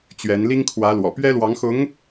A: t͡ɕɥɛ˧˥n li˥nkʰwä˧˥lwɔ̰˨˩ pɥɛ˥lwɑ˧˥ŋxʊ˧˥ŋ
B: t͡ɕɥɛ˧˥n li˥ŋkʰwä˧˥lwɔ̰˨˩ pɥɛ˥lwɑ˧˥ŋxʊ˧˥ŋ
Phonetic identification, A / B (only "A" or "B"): B